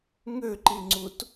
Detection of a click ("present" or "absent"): present